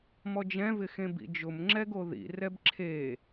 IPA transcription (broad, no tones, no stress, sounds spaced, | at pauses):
m ɔ d͡ʒ ɛ̃ v ɪ x ẽ b ḭ d͡ʒ ʊ m ŋ͡ǁ ɛ ɡ o ð ḭ r ɛ b ǁʰ e